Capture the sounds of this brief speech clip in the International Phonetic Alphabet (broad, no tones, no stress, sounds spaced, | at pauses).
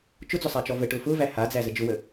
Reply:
t͡ʃ ʊ d͡z ʊ sˤ a t͡ʃ ɔ v ə ʈ ʊ f ʊ v æ h a d͡z æ z ə d͡ʒ ʊ w ə